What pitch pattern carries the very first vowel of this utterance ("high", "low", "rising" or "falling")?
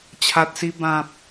low